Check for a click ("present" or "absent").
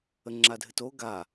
present